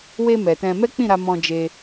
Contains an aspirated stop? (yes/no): no